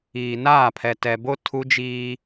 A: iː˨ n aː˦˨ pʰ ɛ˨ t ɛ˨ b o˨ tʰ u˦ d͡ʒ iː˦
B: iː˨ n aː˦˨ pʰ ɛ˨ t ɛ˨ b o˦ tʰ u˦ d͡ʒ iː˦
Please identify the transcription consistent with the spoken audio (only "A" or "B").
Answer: B